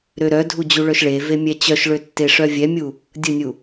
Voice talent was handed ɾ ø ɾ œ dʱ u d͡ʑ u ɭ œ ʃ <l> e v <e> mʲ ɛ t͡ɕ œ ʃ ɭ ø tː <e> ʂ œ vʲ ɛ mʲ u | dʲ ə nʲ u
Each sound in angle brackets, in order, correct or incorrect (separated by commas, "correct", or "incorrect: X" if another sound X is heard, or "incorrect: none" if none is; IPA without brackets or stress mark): incorrect: ɭ, correct, correct